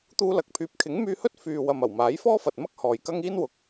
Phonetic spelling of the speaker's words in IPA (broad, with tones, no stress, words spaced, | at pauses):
t̪uː˧lɐ˨k̚pʰyː˨p̚ kʰɪ˨˥ŋmyː˧hɵ˥t̚ fyː˨ wɐ˨mɐ˨˩w maː˨˥jfɔː˥fɐ˨t̚mɐ˥k̚ hɔː˨jkɐ˥ŋ iː˥nwʊ˨k̚